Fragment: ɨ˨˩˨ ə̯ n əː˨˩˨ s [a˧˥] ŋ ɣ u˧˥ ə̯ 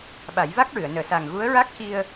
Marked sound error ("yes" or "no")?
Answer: yes